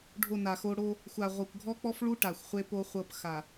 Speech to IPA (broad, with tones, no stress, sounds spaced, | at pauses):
ɖʱ o˦˨ n a˨ x o˦ ɽ o˦ | xʷ a˨ ʁʷ ɤ˨ kʷ ɡʱ ɔ˦ k͡p ɔ˦ f ɭ u˦ ʈ a˨ xʷ χʷ e˦ p o˦ χʷ ɤ˦˨ p x a˨